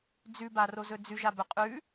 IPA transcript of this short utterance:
d͡z ʉ b a r o z ɵ d͡z ʉ ʒ a b ɵ qʼ ʉ

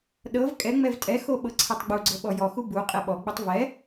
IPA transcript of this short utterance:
ɗ ɤ v kʼ ɛ ŋ͡m ɛ v tʼ ɛ x o ɓ ɤ ǀʰ ɛ tˤ ɡ͡b u ɡ͡ǀ ɤ ɓ ɔ j ɔ x u b u qʼ ɛ ɓ ɔ ɡ͡b u tˤ v ɛ

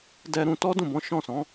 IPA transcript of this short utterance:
d ɛ˧ ɾ ũ˧ t ɔ˦ d ũ˦˨ b ɔ̃˨˦ ʃ ɔ̃˦˨ s ɔ̃˨˦

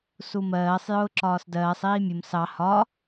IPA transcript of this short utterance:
s u m ɜː sˤ j ʊː ǁ ɒː s d ɜː sˤ iː mʲ ʊ m s ɑ h ɒ

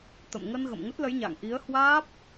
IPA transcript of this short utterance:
t̪ ə̰˧˨ m ŋ ə˧ n ɣ ə̰˧˨ m ŋ ə˦˥ t̚ l ə˨˦ j ɲ a̰ː˧˨ ŋ ʔ i˨˦ ə̯ h w aː˦˥ p̚

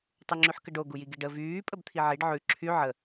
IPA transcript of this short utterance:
tˤ y ŋ͡ǁ y ħ k ə ɖ o ɡ u j i ɡ i ɖ ə v yː pʼ ə b t̪ʰ i ʕ i ɖ ʕ ʉ ǁʰ y ʕ ə

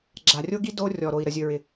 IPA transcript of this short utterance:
ɡ͡ǁ a˨ rʲ o˦ ɡ i˦ d o˦ rʲ ɔ˨ ɾ o˨ i̯ ɾ ə˨ zʲ ɵ˨ ɹ ɪ˨

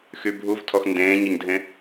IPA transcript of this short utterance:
x y bʱ u v tʰ ɔ x n d ẽː ɲ a ɲ dʱ ẽ

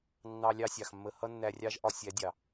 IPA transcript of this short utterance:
nː ɑ˧ lʲ ɑ˦ sʲ ɑ˨ x mː ə˧ h ʌ˦ nː æ˧ rʲ ɑ˦ ʒ ʔ ɒ˧ sʲ æ˨˦ dʲ ɑ˨

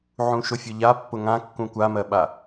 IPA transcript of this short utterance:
ʕ ũ ʃ ʊ fʲ ʊ ʎ a pː ʊ ŋ ã kː ũ kʷ a m ɜ ɓ a

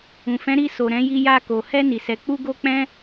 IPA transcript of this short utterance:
ũ˨ f ɛ̃˨˦ ɾ i˧ s o˨ ɾ ɛ̃˨˦ j i˧ j a˧ k o˨ h ɛ˧ n i˨ s ɛ˨ k͡p u˧ ɡ o˦ k͡p ɛ̃˦

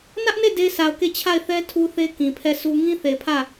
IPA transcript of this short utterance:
n ä˦ ʔ n e˦˨ d e˦ sʰ a˨ ʊ̯ k e˦˨ t͡ɕʰ a˦˨ ɪ̯ θ ɛ˦ tʰ u˦ θ e˦ k ĩ˨ pʰ ɛ˦˨ sʰ u˦ ŋ ĩ˦ θ e˨ pʰ ä˦˨

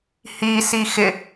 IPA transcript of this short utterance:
h i s i x ɪ

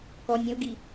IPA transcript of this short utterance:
k ɔ nʲ ɐ̃ u̯ ɡ i

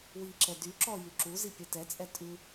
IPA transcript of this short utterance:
w i ǁ ɛ d y ǁ ɔ j y ǁ u z i pʲ ɛ t ɛ t͡sʼ ɛ tʼ ʉ

